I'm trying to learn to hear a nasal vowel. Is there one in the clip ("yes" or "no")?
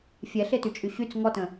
yes